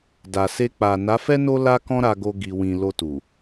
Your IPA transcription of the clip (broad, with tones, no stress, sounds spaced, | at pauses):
d a˨ s e˧ k͡p a˨ n a˨˦ f ɛ˦ n o˦ l a˦ k ɔ̃˦ ɾ a˧ ɡ o˧ ɡ i˨ w ĩ˨ l o˧ t u˨